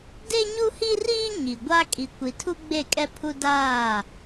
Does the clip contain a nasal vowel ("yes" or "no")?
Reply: no